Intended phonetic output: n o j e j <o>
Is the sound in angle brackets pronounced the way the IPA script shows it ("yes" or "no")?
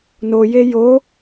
yes